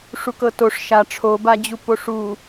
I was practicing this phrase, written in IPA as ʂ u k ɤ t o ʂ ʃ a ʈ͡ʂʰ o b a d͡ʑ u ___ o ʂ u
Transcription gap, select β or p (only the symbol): p